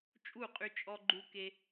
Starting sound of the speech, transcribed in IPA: t͡ʃʼ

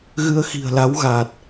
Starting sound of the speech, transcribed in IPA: ɣ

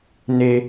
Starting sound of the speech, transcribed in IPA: n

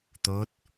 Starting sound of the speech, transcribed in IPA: t̪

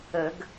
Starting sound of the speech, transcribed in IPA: ə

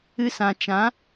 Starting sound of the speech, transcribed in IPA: ɨ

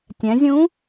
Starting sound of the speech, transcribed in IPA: tʲ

